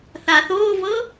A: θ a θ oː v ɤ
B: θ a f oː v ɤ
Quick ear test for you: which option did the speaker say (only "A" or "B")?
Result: A